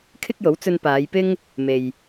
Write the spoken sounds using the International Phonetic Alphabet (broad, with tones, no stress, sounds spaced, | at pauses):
kʰ ɪ˥ k̚ j o˨˥ w t͡s ɵ˧ n p aː˨˧ j p ɪ˥ ŋ | m e˨ j